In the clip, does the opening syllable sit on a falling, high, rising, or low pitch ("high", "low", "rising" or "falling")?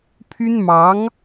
high